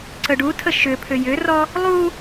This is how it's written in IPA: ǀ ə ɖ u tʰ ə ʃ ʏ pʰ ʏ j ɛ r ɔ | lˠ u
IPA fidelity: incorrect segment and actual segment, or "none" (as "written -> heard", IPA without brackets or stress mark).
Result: ɛ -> ʏ